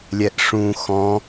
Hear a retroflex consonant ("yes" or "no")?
yes